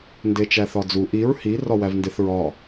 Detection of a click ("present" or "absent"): absent